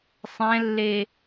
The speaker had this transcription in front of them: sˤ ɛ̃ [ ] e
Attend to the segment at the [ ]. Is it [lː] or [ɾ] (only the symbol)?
lː